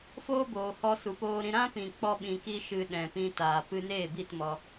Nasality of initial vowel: oral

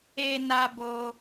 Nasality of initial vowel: oral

